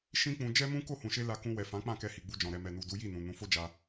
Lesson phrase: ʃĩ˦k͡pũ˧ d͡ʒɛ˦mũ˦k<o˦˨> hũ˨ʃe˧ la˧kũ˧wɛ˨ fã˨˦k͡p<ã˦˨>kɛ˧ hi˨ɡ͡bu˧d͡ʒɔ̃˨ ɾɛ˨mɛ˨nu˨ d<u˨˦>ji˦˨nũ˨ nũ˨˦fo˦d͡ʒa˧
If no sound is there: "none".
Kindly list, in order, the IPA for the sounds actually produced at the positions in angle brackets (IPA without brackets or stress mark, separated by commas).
o˦˨, ã˦˨, u˨˦